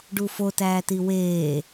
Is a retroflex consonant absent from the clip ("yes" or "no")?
no